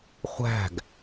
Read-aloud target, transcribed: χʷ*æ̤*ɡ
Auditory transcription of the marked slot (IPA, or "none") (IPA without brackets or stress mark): æ̤